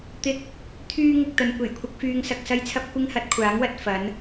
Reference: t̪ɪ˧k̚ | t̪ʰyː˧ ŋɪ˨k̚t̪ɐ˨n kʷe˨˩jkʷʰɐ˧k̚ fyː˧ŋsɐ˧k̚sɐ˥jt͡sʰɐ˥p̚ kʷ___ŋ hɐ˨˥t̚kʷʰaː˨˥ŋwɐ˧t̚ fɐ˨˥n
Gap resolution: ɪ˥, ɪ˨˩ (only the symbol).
ɪ˥